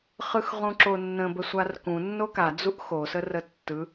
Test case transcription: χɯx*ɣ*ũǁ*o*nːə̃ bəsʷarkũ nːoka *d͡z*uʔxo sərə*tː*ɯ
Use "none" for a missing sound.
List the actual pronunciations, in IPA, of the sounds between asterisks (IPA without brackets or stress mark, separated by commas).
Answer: ʁ, o, d͡z, tː